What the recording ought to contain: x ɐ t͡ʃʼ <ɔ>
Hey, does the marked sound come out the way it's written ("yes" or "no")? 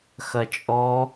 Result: yes